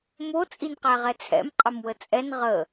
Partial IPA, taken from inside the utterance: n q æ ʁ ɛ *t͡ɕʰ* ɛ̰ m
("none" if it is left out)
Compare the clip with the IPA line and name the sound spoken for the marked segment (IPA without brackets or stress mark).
t͡sʰ